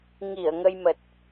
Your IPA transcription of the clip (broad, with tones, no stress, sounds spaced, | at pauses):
ŋ i˧˩ ə̯ ŋ ə˧ j m ə˨˩ t̚